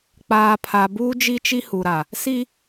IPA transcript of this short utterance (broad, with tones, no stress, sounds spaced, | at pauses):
k͡p aː˨ pʰ a˨ b uː˦ d͡ʒ i˦ t͡ʃ i˦ h u˨ ɾ a˨ | s i˦